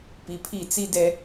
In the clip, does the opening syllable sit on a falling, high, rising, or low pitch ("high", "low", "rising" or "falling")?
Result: low